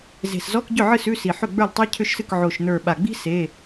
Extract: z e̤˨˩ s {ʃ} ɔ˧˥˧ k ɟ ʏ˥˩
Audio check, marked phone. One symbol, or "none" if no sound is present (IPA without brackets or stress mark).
z